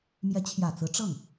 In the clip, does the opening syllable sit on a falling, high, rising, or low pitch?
rising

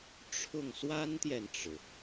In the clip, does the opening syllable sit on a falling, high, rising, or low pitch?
falling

